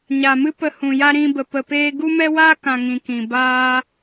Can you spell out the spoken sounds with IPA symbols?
ɲ a˨ m ɨ˦ p ə˧ h ũ˨ j a˦ ɾ ĩ˦ b ə˧ p ə˧ p eː˦ ɡ u˦ m ɛ˦ w a˦ k ã˨ ŋ ĩ˧ k ĩ˨ b aː˧

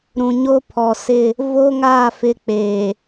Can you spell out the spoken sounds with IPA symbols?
ɾ ũ˨ ɲ o˦ pʰ ɔ˨ s ɪ˦˨ | v o˦ ŋ aː˦˨ f ɪ˦ k͡p eː˨

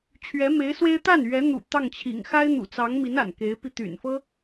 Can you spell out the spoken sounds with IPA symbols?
t͡ɕʰ ɥ ɛ˧˥ m e˧˥ ɪ̯ s w e˥ ɪ̯ t̪ a˥˩ n ɥ ɛ˧˥ n̪ ṵ˨˩ t̪ ɑ˥˩ ŋ t͡ɕʰ ḭ˨˩ ŋ x a˥ ɪ̯ n̪ ṵ˨˩ t͡s ɑ˧˥ ŋ m i˧˥ n a̰˨˩ n k e˧˥ ɪ̯ p i˧ t̪ y̰˨˩ n f ɤ˥

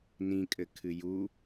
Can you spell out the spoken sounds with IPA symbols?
n ĩ kʼ ɘ kʰ ɨ j u

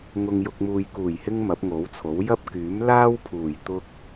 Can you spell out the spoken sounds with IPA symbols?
ŋ ʊ˨ ŋ j ʊ˨ k̚ m uː˨ j k uː˨˩ j h ɪ˧ ŋ m ɐ˨˥ p̚ ŋ o˨˥ w t͡sʰ o˨˥ w j ɐ˥ p̚ k yː˨˥ m l aː˥ w pʰ uː˨˩ j t̪ ʊ˧ k̚

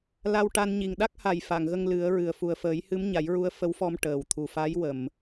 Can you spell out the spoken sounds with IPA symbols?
l a˧ w ʈ a˧ n ɲ i˨˩ ŋ ɗ a˦˥ k̚ h a˨˩ j f a˨˩˨ ŋ ɣ ə˧ ŋ l ɨ˨˩˦ ə̯ ɹ ɨ˨˩ ə̯ f u˨˩ ə̯ f əː˨˩˦ j h ɨ˧˥ m ɲ a˨˩˦ j ɹ u˧˥ ə̯ f ə˧˥ w f ɔ˧ m ʈ əː˨˩ w t̪ʰ u˨˩ f a˧˥ j w ə˨˩˨ m

